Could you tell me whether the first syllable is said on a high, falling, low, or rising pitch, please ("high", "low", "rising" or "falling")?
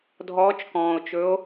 rising